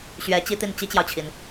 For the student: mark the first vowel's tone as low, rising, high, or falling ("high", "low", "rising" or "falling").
rising